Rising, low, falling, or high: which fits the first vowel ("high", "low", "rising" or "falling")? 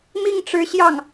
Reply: falling